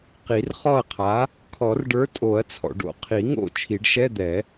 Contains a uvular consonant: yes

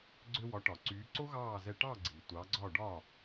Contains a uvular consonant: no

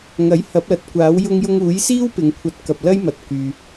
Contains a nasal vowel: no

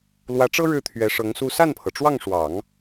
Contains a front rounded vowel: no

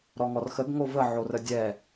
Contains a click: no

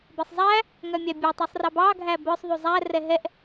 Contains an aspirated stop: no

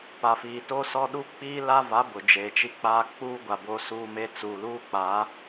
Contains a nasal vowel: no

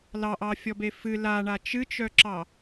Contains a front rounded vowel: yes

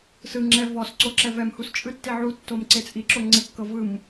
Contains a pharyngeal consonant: yes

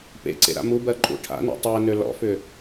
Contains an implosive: no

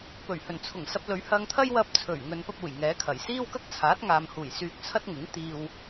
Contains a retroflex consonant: no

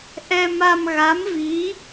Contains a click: no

